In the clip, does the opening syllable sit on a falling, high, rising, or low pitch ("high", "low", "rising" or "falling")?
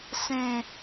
low